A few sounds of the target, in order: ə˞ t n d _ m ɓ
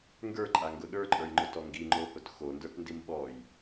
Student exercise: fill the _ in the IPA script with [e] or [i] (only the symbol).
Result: i